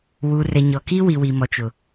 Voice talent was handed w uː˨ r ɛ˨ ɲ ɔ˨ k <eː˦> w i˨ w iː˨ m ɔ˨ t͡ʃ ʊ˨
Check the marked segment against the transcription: incorrect: iː˦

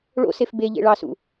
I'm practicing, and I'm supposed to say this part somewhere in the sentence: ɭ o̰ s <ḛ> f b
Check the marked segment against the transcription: incorrect: e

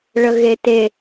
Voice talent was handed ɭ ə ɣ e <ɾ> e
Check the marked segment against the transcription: incorrect: t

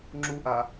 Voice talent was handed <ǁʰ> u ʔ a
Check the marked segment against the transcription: incorrect: ŋ͡ǁ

